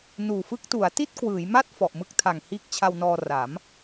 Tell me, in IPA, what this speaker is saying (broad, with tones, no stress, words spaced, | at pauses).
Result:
nuː˨˩fɯ˦˥k̚tu˩˦a̯ ti˥˩t̚ kwɯː˩˦jma˥˩t̚ fɔ˨˩ʔmɯ˦˥k̚tʰa˨˩ŋ hiː˦˥k̚t͡ɕʰa˧wnɔː˧ra˩˦m